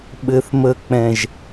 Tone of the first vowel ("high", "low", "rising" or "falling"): low